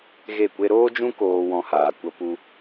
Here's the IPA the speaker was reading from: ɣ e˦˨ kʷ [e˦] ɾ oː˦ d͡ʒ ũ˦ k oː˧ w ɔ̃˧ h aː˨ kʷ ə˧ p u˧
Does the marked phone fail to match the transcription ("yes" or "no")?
no